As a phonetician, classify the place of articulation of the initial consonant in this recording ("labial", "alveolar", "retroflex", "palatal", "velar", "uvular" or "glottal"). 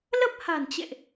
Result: alveolar